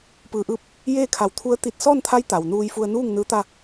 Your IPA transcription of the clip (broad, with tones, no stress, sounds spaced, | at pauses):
p ɯː˩ ʔ ɯː˧˩ p̚ | j eː˥˨ kʰ a˧˩ w t̪ʰ u˧˥ ə̯ t̪ i˧˩ t̚ s ɔː˥˨ n t̪ʰ a˧˥ j t̪ a˩ w n uː˧ j f u˧ ə̯ n uː˥˨ ŋ n ɯː˧˥ t̪ a˥˨